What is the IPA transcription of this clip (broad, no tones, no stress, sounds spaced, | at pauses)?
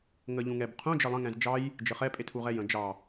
ŋ ə ʎ ũ ŋ ɛ b qʰ ũ d͡ʒ ə lˠ ə̃ ŋ ɛ̃ z d͡ʒ ɑ j | d͡ʒ ə χ ɛ pʼ e tʰ u ʁ ɛ j ə̃ d͡ʒ ɑ